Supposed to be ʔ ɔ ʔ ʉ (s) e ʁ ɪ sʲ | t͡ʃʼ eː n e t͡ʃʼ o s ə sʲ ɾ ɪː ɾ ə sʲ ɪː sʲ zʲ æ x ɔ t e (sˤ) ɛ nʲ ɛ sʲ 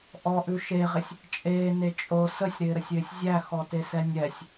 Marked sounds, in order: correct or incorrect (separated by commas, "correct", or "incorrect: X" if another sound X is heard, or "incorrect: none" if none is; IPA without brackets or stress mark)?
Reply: incorrect: ʃ, incorrect: s